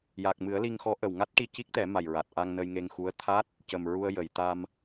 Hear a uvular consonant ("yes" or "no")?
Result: no